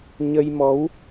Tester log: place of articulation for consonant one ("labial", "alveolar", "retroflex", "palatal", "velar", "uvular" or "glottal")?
palatal